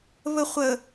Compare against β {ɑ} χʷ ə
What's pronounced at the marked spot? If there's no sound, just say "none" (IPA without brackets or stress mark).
ə